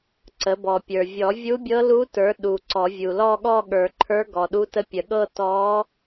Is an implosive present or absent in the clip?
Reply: present